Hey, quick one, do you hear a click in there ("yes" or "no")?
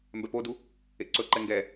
yes